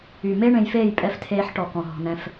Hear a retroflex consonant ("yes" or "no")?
yes